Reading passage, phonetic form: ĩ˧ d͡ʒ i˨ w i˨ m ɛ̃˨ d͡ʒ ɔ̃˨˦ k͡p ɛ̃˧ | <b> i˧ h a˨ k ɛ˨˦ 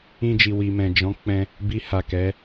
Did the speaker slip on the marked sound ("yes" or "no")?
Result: no